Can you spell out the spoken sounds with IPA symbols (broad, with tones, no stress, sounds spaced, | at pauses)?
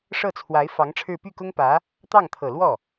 ʂ ɤ˥˩ t͡sʰ w a˧˥ ɪ̯ f ɑ˧˥ ŋ ʈ͡ʂʰ ɻ̩˥˧ p y˥˩ k ʊ˥ ŋ p ä˧˥ | t̪ ɑ˥˩ ŋ t̪ʰ ɤ˨˩ l w ɔ˥˩